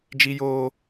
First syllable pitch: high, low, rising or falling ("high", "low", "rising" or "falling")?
high